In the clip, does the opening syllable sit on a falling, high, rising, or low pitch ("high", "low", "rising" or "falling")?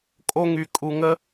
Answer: high